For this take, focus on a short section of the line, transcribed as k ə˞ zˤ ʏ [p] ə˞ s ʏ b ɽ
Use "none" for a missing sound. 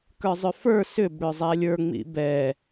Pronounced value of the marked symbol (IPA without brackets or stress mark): f